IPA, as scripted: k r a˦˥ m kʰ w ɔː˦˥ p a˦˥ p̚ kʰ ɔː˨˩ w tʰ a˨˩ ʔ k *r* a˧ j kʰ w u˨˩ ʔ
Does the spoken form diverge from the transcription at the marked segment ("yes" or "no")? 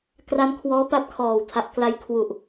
yes